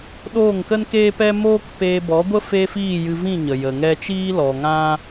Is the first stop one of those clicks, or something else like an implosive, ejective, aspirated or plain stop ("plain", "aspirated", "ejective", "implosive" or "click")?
implosive